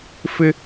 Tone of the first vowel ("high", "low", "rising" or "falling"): high